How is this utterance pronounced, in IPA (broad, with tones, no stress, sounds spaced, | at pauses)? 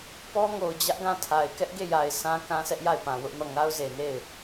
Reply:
p ɔ˦ ŋ o˨ ʊ̯ d͡ʑ ä˦ ʔ ɡ ã˦˨ tʰ a˨ ɪ̯ k ɛ˦ ʔ ɡ e˦˨ j a˨ ɪ̯ sʰ ã˦ k ã˦ sʰ ɛ˦ ʔ j a˦˨ ɪ̯ p ã˨ w ʊ˦ ʔ n ɔ˦˨ ŋ a˦ ʊ̯ z e˨ n e˦˨ ɪ̯